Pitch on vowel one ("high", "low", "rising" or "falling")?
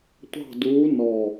falling